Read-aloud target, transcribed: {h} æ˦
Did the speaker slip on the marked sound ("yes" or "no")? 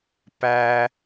yes